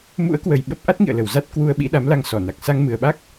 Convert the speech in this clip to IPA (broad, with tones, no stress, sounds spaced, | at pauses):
m ṵ˧˥ ə̯ k w ə˨˩ j ɓ ə˦˥ p̚ ʔ a˦˥ t̚ ŋ ḭ˧˨ ə̯ l ə˨˩ w z a˦˥ t̚ k w u˧ ə̯ ɓ ḭ˧˥ ɗ a˨˦ m l a˧ ŋ s ɔ˧˩ n a˨˩ k̚ s a˧ ŋ m ɨ˨˩ ə̯ ɓ a˦˥ k̚